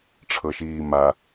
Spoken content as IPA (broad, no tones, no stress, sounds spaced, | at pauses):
ʈ͡ʂʰ ɤ ʃ iː m a